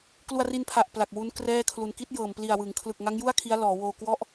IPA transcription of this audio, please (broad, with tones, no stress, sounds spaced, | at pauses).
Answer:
k l u˧ a̯ r i˧ n pʰ a˨˩ ʔ p l a˨˩ k̚ w u˦˥ n k r ɛː˥˩ kʰ l u˧ n k i˦˥ t̚ j ɤː˨˩ m p l i˨˩ a̯ w ɯ˩˦ ŋ kʰ l ɯ˨˩ k̚ ŋ a˦˥ ŋ j u˥˩ a̯ kʰ i˦˥ a̯ l ɔː˩˦ w oː˧ k w ɔ˥˩ ʔ